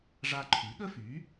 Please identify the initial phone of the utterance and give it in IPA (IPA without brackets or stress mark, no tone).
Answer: ʐ